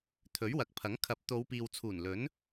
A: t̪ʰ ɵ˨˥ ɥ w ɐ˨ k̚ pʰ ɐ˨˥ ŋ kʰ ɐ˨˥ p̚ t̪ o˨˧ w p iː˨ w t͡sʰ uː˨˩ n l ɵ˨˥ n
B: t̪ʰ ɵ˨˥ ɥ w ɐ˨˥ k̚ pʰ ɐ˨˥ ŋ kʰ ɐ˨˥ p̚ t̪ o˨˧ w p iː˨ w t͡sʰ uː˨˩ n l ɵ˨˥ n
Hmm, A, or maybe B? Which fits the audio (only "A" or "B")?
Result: B